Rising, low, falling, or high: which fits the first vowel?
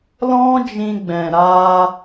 high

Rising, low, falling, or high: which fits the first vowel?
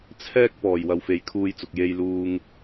high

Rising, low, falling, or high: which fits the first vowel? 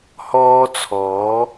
high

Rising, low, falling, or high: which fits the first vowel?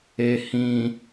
low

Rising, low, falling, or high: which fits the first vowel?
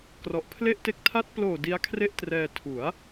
low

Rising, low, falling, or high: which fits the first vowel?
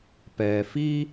low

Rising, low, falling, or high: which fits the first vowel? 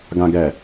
high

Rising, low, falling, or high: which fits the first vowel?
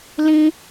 high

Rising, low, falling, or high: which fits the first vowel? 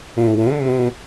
low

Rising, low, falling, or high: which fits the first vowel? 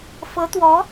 rising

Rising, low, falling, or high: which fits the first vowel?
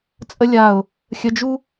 high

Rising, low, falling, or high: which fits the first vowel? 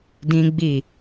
high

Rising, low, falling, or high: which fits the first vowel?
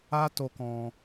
high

